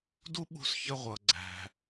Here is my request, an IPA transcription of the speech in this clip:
d u˥ ɓ ṳ˧ s ç ə˧ ʁʷ ʌ˩ ɡ͡ǀ æ̤˩

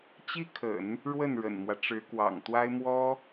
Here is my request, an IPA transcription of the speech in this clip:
t͡ɕ i˥ kʰ ə̰˨˩˦ n | ɻ w ə˥˩ n ɻ ə̰˨˩ n m w ä˦ ʈ͡ʂ ɻ̩˧˥ k w ɑ̰˨˩ ŋ t̪ w a˥ ɪ̯ m w ɔ˥

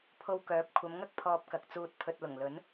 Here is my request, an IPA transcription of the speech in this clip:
pʰ o˧ w k œː˨˥ p̚ kʷʰ ɐ˨˧ m ŋ ɐ˥ k̚ pʰ ɔː˧ p̚ k ɐ˨ k̚ t͡s uː˧ t̚ pʰ ɵ˨ t̚ l ʊ˨˩ ŋ l ɵ˨˥ n

